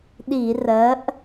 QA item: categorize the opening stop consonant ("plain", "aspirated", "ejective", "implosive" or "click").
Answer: implosive